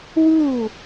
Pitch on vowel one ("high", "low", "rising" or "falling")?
falling